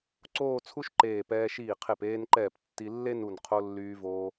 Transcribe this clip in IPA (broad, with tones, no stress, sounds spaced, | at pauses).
ǀ oː˥˧ t͡sʰ u˥ ʃ ǃ eː˧˩ p ɛː˧ ʃ iː˧˩ qʰ e˧˩ p eː˧ n ǃ ɛː˧˩ p tː i˧ lː e˥ n u˧˩ n qʰ o˧ lː yː˧ v oː˧